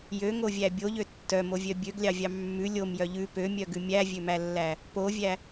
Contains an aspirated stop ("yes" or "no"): no